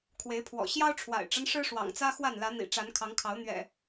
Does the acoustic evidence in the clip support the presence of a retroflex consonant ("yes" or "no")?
yes